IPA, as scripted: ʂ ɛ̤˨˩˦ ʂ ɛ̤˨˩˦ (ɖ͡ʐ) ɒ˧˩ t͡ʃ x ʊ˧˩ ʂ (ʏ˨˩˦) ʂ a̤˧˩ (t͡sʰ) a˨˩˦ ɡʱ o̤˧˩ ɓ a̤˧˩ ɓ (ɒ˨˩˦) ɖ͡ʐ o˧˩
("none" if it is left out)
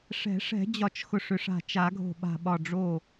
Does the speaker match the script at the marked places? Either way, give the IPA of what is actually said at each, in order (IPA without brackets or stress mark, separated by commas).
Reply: d͡ʑ, ʏ˨˩˦, t͡ʃ, ɒ˧˩